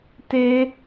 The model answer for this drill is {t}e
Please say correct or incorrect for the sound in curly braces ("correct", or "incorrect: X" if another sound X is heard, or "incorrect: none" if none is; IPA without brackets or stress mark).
correct